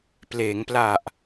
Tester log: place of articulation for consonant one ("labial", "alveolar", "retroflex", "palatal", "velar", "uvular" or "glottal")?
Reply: labial